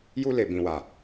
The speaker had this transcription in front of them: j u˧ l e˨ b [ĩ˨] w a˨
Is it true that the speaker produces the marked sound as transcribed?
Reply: yes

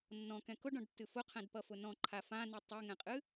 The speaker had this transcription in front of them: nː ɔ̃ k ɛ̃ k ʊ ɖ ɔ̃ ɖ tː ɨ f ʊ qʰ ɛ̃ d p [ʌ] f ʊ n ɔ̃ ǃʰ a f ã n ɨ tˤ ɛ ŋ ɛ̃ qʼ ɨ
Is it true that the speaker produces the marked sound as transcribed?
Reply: yes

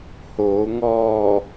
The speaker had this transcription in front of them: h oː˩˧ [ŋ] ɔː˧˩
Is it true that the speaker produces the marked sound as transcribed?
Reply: yes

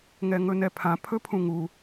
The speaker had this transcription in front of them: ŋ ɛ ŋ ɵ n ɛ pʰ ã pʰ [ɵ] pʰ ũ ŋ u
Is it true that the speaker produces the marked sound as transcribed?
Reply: yes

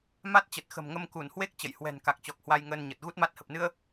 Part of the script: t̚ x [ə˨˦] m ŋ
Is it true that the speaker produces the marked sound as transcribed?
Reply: no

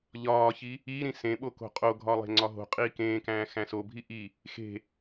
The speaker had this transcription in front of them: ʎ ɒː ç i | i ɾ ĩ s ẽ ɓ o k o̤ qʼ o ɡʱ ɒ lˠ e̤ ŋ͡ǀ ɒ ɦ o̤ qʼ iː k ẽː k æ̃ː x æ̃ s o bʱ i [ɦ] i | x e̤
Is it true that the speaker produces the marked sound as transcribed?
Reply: no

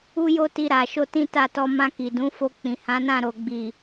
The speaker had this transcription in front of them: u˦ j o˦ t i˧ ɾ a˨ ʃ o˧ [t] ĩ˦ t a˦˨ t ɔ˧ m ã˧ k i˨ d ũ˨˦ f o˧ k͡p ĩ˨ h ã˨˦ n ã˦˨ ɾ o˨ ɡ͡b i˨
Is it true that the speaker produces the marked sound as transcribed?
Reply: yes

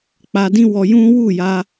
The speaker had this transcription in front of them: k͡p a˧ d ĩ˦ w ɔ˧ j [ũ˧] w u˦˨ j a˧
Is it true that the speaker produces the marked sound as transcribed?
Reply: no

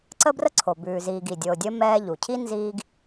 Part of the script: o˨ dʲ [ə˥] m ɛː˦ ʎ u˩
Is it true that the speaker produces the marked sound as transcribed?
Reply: yes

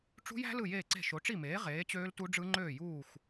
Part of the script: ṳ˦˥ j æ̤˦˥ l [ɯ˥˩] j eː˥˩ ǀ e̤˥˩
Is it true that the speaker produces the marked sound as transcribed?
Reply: yes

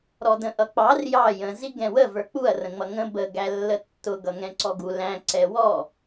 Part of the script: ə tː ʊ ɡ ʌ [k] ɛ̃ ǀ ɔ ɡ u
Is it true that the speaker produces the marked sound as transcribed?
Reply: no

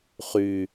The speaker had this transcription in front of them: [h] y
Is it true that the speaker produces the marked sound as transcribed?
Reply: no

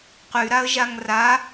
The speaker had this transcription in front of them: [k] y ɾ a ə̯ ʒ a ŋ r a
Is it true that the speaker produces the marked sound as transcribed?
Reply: no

